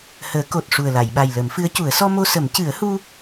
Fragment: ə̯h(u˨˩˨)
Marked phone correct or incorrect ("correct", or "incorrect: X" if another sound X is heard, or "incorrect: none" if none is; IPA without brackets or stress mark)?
incorrect: u˧